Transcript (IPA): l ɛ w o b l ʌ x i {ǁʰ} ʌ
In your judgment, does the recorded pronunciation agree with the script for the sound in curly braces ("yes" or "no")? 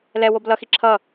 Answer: yes